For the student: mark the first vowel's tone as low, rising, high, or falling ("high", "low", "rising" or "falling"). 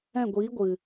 falling